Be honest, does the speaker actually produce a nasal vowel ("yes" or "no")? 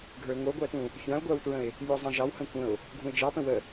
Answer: yes